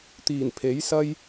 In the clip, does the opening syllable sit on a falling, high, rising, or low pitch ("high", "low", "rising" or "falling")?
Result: low